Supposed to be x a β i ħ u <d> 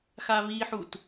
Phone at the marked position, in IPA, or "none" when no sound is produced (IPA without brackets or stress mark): t